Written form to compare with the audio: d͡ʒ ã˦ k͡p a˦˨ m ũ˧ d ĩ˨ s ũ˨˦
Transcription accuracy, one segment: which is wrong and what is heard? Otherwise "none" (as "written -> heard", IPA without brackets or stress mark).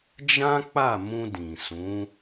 none